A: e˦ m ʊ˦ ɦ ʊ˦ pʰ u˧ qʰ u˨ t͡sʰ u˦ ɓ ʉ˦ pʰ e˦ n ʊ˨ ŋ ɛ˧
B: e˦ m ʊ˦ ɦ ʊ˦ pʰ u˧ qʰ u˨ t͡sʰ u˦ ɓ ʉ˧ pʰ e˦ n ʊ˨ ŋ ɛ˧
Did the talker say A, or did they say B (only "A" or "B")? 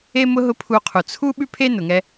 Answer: A